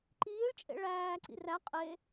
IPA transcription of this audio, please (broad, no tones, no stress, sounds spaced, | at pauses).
ǃ iː ɭ t͡ʃʼ ḛ ɭ æː ǀ ḭ r æ qʼ e